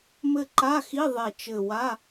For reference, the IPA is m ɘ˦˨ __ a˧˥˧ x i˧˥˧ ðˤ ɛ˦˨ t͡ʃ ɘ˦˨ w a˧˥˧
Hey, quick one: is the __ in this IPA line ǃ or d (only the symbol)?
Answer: ǃ